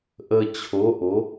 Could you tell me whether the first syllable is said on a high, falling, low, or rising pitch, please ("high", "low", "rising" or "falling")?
low